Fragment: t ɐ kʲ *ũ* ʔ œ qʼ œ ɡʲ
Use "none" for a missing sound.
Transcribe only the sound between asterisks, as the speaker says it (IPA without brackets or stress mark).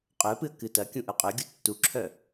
ũ